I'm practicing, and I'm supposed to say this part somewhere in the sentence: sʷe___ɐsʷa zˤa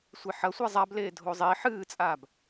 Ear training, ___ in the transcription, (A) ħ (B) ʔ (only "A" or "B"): A